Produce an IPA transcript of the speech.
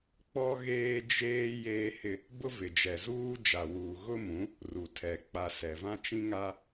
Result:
k͡p ɔ˦ ɣ eː˦ d͡ʒ eː˦ j eː˦ h ɪ˦ | b ʊ˦ v ɪ˨ d͡ʒ ɛ˨ z uː˦ d͡ʒ a˨ w uː˨ ɣ ʊ˦ m ũ˨˦ | r u˨ tʰ ɛ˨ k͡p a˨ s ɛ˨ v ã˦ t͡ʃ ĩ˦ ŋ a˦

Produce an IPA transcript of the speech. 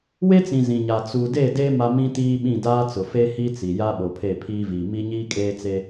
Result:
w e˦ t͡s ĩ˨ z ĩ˨ ɲ a˨ t͡s u˨ d e˦˨ d e˦ m a˦ m ĩ˦ t iː˦ ɓ ĩ˦˨ d aː˦ t͡s ʊ˨ f e˦ h i˦ t͡s i˨ j a˦ ɓ o˨ pʰ e˦˨ pʰ iː˦ v iː˨ m i˦ ɲ iː˦ kʼ eː˦ t͡s e˦

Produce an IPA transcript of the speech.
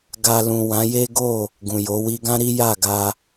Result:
ɡ a˧ l ũ˨ w ã˨˦ j e˦ ɡ o˦˨ | ɡ ũ˨ j o˨˦ w i˧ ɡ ã˦ ɾ i˦ j a˦˨ ɡ a˧

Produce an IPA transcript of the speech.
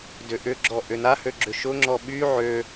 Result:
d ʏ ʔ ʏ ɡ͡ǁ ɔ ʔ ʏ n a h ø ɡ͡ǁ ʏ ʃ ʊ ŋ͡ǁ ɔ ɓ y ʕ ø

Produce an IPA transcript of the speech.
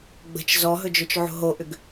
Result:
ɡ͡b ə̤ t͡ʃ z ɔ ɦ ɵ d͡ʒ ɵ t͡ʃ ʕ o̤ ɦ o ʔ ʏ ɡ

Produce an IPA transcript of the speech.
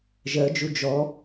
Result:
ʒ ɜ d͡ʒ u d͡ʒ ɔ

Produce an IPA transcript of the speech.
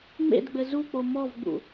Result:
ŋ͡m ḛ d ɡ͡b ɘ z u k͡p o m ɔ v ɡ͡b ṵ

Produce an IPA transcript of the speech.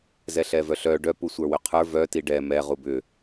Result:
z ɛ ɬ ɛ v œ ɬ œ ɖ œ p u sʷ ə˞ w ʏ qʰ ə˞ v œ t i ɖ ɛ m ɛ ʁ u b ʏ

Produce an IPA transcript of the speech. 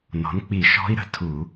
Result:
n ɔ̤˩˥ n k͡p i˧˩˧ ʃ ɔ̤˧˥ i̯ ɾ ə̤˩˥ tʰ u˧˩˧

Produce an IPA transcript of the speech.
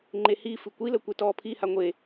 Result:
ŋ͡ǃ e h i f ɨ kʷ i l ə kʷ e t ɔː pʰ i h a ŋʷ e

